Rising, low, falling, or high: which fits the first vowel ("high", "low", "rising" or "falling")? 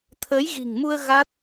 rising